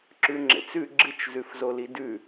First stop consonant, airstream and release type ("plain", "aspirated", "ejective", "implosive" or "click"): click